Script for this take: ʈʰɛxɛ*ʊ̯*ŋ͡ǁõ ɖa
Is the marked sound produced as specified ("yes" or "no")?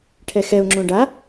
yes